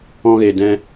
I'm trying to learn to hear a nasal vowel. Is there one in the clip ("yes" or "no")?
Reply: yes